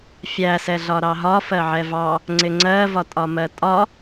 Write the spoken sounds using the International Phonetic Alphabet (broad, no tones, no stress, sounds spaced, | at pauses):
fʲ æ s ɛ ɮ ɒ ɾ ɑ ɦ ɒ f ɜ ʕ ɛ v ɑ | ŋ͡ǀ ɪ ŋ͡ǀ ɜ v ɒ tʼ ɒ m ɜ tʼ ɒ